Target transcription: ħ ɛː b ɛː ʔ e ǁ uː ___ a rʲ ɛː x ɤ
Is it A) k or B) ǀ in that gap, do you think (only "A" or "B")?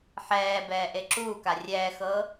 A